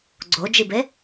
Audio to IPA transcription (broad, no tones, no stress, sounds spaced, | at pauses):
ɡ͡ǀ o d͡ʒ i b e